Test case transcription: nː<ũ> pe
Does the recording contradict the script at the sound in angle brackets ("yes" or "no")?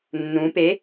no